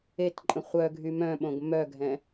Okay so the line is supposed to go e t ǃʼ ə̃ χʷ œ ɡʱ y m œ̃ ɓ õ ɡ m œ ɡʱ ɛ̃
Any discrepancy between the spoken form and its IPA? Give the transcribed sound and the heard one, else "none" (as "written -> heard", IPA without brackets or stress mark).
none